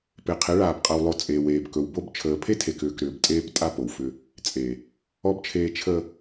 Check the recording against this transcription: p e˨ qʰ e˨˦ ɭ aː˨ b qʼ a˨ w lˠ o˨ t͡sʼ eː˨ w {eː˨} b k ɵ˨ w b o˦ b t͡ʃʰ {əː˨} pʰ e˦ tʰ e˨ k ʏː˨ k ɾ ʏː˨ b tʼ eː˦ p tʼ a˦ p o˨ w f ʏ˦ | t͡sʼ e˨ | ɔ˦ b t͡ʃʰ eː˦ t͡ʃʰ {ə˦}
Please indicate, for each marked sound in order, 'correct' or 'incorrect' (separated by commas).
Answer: correct, correct, correct